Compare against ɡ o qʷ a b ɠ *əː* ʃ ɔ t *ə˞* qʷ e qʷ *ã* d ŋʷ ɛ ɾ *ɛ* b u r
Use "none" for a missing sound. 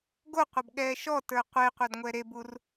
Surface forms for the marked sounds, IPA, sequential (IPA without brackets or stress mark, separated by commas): ɛː, ə˞, a, e